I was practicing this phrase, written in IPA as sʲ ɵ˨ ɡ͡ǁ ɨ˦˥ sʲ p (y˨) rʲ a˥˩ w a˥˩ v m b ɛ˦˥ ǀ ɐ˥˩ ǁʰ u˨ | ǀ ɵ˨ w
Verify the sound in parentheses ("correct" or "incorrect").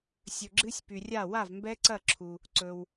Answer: correct